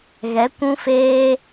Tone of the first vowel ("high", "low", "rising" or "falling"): rising